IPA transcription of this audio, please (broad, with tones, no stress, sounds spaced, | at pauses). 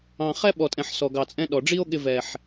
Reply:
ɑ̃˨ χ ɛ˧ ɓ ɔ˨ tʼ ɛ̃˨ ħ s ɔ˨ ɡ ɑ˨ t͡sʼ ɛ̃˧ ɗ ɔ˨ ɖ͡ʐ i˦ o̯ ɠ ɪ˧ v ɛ˨ ħ